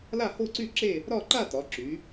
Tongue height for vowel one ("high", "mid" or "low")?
low